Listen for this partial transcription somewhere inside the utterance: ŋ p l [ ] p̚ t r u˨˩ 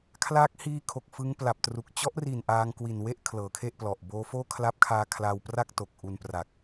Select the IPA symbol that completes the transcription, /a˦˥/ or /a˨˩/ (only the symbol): a˨˩